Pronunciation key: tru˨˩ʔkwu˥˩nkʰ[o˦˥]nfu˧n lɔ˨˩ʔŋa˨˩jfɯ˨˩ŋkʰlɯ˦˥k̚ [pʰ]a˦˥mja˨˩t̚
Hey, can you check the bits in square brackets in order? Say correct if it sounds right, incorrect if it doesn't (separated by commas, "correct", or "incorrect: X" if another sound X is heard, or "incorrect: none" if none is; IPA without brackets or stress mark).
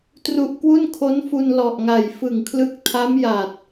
correct, incorrect: tʰ